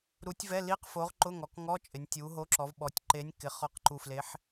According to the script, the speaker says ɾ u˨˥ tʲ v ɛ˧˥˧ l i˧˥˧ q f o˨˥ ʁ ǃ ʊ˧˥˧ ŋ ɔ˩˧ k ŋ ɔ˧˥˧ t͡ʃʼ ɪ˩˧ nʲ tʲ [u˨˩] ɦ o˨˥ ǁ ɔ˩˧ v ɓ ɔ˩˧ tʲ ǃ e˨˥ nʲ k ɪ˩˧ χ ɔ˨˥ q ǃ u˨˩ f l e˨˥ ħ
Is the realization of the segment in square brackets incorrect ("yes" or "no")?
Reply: yes